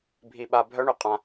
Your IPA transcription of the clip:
bʱi˧ɓa˧ bʱœ˦ɳy˨ qʼã˦

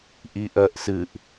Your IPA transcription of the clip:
ʔiʔɜʔsɨʔ

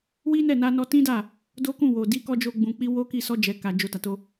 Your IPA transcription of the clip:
wi˦nɛ˦˨ na˧nɔ˧tĩ˦da˦˨ | do˦kũ˦˨wo˨ di˨˦kɔ˧ d͡ʒo˦ɡ͡bũ˧k͡pi˦ wo˦ki˦˨ sɔ˧d͡ʒɛ˨ ka˨ d͡ʒo˨ ta˨to˧

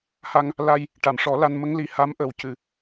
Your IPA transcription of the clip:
ha˧ŋ | la˧j | ʈa˨˩˨mʂɔ˨˩˦la˧n mə˧˥ŋli˨˩ ha˧˥mʔə˨˩w cɨ˨˩˨

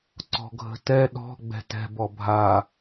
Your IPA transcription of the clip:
ǀɔ̤ɡʱə̤tɛ ɗɔ̤ ɡ͡bɛ̤tɛ̤b ɔbʱa

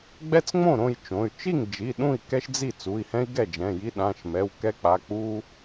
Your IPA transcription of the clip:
ɡ͡bɛ˦t͡sŋ͡mõ˥˩ɾõ˥˩j t͡ʃõ˩˧˩y̯ t͡ʃi˥˩ŋd͡ʒi˩˧˩ ɗũ˥˩i̯ kɛ˦ʃd͡zi˥˩ t͡su˩˧˩i̯hɛ̃˦i̯ ɡɛ˥˩d͡ʒɛ̃˩˧˩ji˦ ɗã˩˧˩ʃmɛ˩˧˩wkɛ˦k͡pa˩˧˩ k͡pu˦

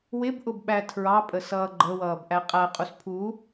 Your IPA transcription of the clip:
wɪbʔʊbɓæ tʰɹɑpʼə sʌːɡ͡ǃəwʌːb ʔæqʼæ qʼuspʰu

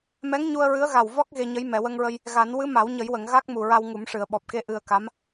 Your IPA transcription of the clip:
mɛ˧˥ŋɲu˧ə̯ɹɨ˧˥ə̯ɣa˨˩w vɔ˦˥k̚ ɣe˧ɲə˧˥j mɛ˨˩˨wə˧ŋɹə˧j | ɣa˨˩˦n wɨ˧˥ma˨˩˦wɲə˨˩˦jwə˨˩˨ŋ ɣa˦˥k̚mu˨˩ ɹa˧wŋu˨˩˦mʂɨ˨˩˨ə̯ ɓɔ˨˩p̚ke˧ ʔɨ˧ə̯ka˧˥m

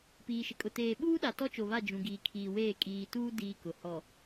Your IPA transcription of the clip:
piː˨ʃɪ˨kʼʊ˨ teː˨ɓuː˦ɗa˨ tɔ˦t͡ʃo˨βa˦˨ d͡ʒũ˨ ɡiː˨kʰiː˨weː˦˨ kʼiː˨tuː˦ diː˦kʊ˨ hɔ˨

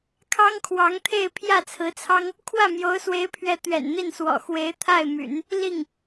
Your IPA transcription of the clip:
kʰɑ˥ŋkʰwɑ˧˥ŋt̪ʰe˥˧ɪ̯ pʰjä˥˩t͡sʰɹ̩˧˥t͡sʰɑ˥ŋ | kʰwä˥˩mjo˧˥ʊ̯swe˧˥ɪ̯pʰɥɛ˧˥ t̪ɥɛ̰˨˩nn̪i˥˩nswɔ̰˨˩ xwe˧˥ɪ̯t̪ʰa˥˩ɪ̯my̰˨˩˦n | li˥˩ŋ

